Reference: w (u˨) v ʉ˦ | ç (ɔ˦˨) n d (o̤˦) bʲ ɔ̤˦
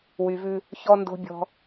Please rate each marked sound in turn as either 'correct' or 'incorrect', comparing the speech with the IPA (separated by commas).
incorrect, incorrect, correct